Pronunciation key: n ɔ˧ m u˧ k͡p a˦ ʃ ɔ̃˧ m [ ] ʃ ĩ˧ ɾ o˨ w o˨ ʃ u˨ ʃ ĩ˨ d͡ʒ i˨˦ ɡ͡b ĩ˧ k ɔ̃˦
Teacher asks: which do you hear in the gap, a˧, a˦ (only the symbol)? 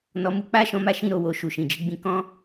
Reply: a˦